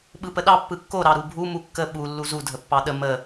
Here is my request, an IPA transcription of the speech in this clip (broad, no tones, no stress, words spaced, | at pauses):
ɓɯpəɗɑ pːɯkːo ɾɑɾubʱu mukːə ɓu lːuzu dʱəpːɑɗə mə